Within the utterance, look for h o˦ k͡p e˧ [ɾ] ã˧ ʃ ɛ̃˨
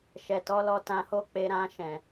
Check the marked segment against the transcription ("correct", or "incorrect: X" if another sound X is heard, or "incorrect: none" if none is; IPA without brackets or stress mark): correct